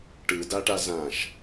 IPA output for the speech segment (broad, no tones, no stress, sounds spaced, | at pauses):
ʈ ɯ d a ʈ a z ã ʃ